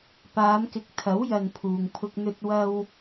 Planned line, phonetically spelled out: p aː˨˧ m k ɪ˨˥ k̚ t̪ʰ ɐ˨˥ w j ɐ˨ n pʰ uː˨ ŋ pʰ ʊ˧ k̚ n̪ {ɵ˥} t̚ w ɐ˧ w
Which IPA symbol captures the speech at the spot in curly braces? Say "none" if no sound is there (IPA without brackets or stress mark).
ɵ˧